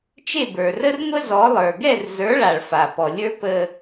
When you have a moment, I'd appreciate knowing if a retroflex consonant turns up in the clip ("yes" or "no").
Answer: yes